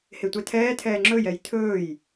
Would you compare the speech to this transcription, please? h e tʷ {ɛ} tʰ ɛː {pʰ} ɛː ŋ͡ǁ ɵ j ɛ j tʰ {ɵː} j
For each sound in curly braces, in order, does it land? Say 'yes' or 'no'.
yes, no, yes

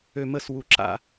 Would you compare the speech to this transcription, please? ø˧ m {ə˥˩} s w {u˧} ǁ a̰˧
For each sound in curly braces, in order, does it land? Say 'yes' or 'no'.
yes, yes

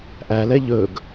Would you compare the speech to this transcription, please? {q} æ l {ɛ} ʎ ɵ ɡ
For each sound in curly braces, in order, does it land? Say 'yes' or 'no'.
no, yes

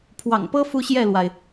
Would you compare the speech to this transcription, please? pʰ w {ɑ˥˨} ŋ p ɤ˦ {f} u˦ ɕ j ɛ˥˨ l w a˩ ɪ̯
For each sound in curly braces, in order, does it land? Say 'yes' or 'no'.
no, yes

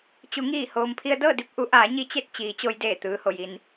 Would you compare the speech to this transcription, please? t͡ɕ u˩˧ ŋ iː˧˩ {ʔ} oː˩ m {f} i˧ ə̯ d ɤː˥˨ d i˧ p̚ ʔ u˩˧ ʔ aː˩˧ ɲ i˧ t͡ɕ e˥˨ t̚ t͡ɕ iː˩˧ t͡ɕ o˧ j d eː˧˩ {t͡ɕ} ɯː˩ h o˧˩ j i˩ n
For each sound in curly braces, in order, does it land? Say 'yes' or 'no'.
no, no, no

